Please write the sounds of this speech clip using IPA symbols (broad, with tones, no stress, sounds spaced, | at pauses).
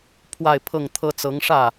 pʰ w a˥˧ ɪ̯ pʰ ɤ˥˩ ŋ t̪ʰ ɤ˥ t͡s ɤ˧˥ ŋ ʂ ä˥˩